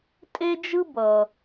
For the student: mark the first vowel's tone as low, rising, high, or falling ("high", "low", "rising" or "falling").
high